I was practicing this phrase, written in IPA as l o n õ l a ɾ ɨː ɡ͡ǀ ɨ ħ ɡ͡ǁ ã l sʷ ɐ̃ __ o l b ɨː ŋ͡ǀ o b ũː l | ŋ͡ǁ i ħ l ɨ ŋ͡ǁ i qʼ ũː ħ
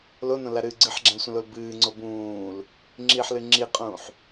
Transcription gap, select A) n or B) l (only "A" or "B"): B